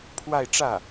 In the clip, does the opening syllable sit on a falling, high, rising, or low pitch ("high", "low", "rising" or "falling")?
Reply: falling